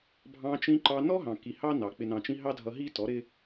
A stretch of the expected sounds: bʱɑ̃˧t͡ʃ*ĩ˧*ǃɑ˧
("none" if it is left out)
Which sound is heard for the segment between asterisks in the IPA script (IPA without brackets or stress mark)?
ĩ˧